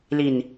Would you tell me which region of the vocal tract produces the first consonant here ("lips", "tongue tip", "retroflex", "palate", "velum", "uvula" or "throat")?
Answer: tongue tip